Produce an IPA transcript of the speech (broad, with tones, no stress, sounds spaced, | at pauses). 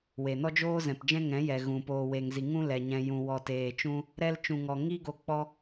w e˨ n ɔ˦ d͡ʒ oː˦ z ɛ̃˨ p d͡ʒ ɛ̃˦ ŋ ɛ̃˨˦ j ɛ˨ ɣ ũ˨ p oː˨ w e˨ ŋ z i˨ ŋ ũ˦ l ɛ˨ ɲ ɛ̃˨ j ũ˨ w ɔ˨ t eː˨ t͡ʃ ũ˦ | ɾ ɛ˧ l t͡ʃ ũ˨ ŋ ɔ˨ ŋ i˦ ɡ o˧ k͡p ɔ˦